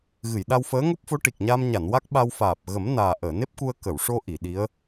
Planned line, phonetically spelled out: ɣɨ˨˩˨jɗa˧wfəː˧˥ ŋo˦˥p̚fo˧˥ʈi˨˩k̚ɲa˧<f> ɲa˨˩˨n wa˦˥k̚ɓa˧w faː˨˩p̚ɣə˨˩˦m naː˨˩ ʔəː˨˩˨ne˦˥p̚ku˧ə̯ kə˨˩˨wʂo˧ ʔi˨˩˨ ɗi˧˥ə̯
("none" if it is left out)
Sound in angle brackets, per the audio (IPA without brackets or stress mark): m